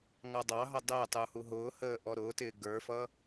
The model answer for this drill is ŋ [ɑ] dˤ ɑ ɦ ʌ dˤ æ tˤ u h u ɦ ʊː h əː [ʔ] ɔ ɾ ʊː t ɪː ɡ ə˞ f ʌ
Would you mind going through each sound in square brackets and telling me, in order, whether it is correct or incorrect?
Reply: correct, correct

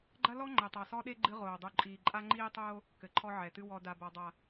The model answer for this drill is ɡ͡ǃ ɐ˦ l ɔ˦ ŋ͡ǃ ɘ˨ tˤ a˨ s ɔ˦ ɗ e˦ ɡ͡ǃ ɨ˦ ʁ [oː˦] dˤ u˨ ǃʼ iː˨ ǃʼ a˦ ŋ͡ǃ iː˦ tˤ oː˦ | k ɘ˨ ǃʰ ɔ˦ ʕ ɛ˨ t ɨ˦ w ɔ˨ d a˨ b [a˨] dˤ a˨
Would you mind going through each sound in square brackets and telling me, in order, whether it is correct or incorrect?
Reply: incorrect: oː˨, correct

